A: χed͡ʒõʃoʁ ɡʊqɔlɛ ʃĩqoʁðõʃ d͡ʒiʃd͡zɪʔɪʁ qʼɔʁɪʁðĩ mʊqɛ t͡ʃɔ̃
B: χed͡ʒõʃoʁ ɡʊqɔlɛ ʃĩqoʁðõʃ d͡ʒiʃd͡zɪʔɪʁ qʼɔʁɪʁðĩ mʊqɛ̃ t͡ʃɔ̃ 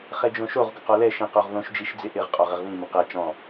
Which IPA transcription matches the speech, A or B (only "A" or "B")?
A